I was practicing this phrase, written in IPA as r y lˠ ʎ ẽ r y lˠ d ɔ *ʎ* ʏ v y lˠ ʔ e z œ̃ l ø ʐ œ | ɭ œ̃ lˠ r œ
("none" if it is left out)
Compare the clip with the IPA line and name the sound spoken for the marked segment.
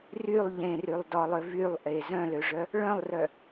lˠ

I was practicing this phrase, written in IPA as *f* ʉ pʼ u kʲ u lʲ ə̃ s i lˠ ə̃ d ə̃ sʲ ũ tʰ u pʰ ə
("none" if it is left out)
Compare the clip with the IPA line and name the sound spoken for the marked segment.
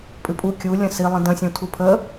pʼ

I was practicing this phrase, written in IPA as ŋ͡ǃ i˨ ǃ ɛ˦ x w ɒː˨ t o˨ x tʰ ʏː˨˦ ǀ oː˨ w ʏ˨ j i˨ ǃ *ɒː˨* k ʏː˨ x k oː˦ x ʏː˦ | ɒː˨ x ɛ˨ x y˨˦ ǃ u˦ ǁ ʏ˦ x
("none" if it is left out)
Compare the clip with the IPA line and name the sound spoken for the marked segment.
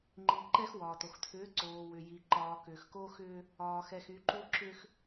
ɒː˨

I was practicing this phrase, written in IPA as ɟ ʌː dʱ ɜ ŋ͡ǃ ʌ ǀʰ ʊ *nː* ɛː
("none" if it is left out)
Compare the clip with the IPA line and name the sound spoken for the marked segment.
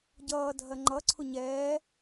ɲ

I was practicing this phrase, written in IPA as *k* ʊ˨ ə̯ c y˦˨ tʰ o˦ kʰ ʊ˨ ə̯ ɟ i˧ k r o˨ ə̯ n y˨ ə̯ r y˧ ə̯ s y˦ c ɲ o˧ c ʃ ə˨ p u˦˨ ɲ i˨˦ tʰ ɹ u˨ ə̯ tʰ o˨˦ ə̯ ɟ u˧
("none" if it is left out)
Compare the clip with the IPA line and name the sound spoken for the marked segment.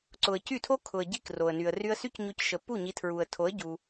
ǀ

